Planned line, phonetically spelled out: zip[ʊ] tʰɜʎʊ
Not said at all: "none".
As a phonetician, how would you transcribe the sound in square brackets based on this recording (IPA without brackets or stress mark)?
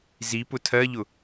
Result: ʊ